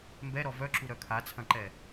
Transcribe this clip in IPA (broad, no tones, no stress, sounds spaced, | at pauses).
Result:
m b ɛ ɾ ɔ v œ ǁ u ɾ œ kʰ a t͡sʰ ɐ̃ ǃ ɛ